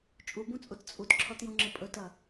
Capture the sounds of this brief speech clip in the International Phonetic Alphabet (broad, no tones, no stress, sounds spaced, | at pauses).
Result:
t͡ʃʼ u b ũ t͡sʼ u t t͡sʼ u t ǁʰ ɔ t j ũ ŋ͡ǁ ɘ pʼ ɵ t ɐ